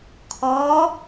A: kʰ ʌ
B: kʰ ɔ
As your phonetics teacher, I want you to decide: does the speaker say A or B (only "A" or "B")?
B